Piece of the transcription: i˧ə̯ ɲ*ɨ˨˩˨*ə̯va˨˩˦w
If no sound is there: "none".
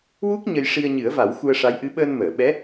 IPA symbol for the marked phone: ɨ˨˩˦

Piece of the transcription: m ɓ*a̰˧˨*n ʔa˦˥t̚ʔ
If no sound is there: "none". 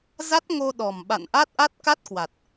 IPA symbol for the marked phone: a̰˧˨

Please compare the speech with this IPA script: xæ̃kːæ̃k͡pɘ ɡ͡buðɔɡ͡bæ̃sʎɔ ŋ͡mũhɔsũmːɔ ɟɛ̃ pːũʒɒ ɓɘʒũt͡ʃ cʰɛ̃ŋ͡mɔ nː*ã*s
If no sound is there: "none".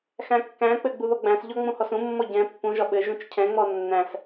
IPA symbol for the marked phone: æ̃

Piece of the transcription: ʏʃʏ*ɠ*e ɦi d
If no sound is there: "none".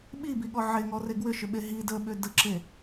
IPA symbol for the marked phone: ɓ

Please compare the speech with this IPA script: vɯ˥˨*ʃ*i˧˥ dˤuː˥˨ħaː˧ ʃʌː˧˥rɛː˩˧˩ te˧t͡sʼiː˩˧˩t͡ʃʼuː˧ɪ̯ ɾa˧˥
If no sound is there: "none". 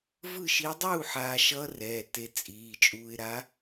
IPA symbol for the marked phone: ʃ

